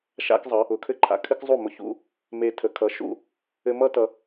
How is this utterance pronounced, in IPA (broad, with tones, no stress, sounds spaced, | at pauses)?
ʃ a̰˥ k zˤ ʌ˩˥ | ʊ˩ kʰ ɘ˥˩ ǃʰ a̰˩ kʰ ɘ˥ k zˤ u˥˩ m ʊ˧ ç ṵ˥ | m e˧ tʰ ə˩˥ kʰ ʌ˩˥ ʃ ṵ˥˩ | ɘ˧ m ʌ˥ t ʌ˧